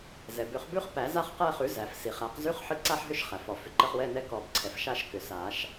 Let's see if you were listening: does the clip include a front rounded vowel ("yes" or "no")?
yes